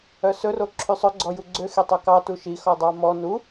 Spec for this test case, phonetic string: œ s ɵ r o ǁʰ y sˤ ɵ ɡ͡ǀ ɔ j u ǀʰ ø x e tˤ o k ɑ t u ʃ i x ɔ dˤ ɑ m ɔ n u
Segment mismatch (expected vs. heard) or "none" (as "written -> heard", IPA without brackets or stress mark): ǀʰ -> ɡ͡ǀ